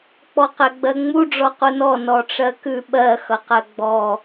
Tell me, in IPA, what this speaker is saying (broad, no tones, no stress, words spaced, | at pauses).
k͡pɔqɛɡ͡bɜŋ͡mu ɖ͡ʐɔqunɔ nɔʈ͡ʂɜkʉ ɓɜ xʌqɜɡ͡bɔ